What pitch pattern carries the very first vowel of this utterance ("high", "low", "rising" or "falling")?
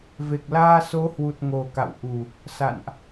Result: low